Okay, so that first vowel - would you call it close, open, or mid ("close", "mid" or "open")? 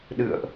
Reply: close